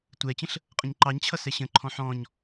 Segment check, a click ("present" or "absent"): present